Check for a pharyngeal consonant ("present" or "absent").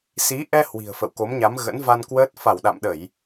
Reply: absent